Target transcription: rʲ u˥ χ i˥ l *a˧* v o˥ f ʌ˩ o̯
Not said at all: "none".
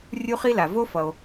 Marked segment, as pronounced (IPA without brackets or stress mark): a˩